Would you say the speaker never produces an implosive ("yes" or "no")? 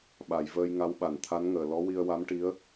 no